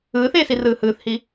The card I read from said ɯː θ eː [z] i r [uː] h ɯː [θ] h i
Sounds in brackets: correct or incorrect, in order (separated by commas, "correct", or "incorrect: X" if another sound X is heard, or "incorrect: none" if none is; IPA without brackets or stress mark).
incorrect: s, incorrect: ɯː, correct